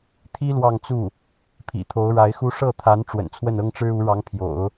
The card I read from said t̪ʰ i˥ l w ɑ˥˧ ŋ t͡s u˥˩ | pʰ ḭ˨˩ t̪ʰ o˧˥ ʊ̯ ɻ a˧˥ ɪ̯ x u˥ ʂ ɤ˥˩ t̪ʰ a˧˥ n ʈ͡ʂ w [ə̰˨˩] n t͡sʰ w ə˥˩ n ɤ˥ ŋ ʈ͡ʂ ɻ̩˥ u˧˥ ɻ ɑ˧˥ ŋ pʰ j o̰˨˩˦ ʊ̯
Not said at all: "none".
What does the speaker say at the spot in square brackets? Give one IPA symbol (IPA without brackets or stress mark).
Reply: ə̰˨˩